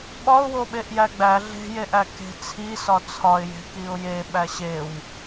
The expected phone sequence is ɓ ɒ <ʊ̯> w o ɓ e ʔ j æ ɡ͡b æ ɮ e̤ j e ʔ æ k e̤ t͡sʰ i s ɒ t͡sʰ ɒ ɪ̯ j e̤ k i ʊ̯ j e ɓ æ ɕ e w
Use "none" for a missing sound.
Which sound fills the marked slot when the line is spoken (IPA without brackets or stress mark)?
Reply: ʊ̯